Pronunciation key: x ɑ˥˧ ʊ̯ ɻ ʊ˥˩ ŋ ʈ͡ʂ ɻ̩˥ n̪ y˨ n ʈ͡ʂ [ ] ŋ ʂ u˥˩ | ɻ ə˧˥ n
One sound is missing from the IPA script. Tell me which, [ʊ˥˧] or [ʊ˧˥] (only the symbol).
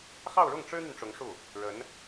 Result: ʊ˧˥